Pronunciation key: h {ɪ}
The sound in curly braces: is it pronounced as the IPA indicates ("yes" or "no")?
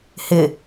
yes